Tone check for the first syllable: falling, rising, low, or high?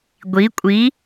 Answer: rising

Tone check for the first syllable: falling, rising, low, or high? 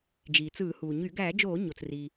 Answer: low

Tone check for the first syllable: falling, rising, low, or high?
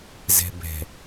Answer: low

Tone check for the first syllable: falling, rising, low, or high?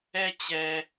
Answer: low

